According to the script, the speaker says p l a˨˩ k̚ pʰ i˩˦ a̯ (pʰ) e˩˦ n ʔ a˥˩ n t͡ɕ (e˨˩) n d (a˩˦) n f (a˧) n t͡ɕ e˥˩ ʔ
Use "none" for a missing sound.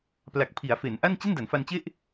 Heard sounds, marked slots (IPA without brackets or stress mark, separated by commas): f, e˥˩, a˩˦, a˧